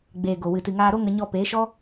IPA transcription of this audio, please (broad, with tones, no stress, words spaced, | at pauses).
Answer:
ɡ͡beː˨ ɡo˨wɨ˨tɨ˨ŋaː˧ ɾo˦ŋə˧ ɲɔ˧peː˨˦ʃɔ˦